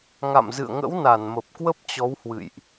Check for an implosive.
absent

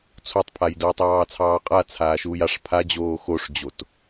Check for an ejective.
present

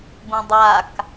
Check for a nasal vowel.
present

